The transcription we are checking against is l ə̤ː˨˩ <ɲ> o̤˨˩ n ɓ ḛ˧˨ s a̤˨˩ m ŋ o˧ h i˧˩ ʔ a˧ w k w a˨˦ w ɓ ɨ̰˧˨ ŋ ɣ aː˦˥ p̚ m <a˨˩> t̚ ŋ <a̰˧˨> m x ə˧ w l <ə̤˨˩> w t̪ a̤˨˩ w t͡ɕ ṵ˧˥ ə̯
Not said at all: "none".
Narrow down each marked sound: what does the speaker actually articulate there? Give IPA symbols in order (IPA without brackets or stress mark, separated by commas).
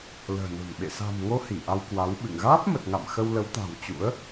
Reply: n, ə˨˩, a̰˧˨, ə˨˦